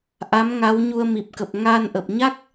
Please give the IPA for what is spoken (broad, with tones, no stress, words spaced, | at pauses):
ʔa˨˦mŋa˨˦w ɲu˧ə̯mi˨˩p̚kə˨˩p̚ ŋaː˧nʔə˨˩p̚ɲa˦˥k̚